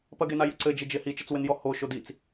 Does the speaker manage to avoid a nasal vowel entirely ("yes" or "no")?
yes